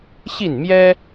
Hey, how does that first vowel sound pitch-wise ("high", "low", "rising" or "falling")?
falling